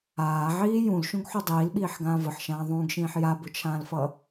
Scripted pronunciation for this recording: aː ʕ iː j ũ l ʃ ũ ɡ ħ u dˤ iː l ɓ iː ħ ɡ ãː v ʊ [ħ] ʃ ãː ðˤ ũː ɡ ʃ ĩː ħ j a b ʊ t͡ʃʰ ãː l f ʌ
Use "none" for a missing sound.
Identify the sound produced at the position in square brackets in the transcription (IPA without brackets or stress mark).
ħ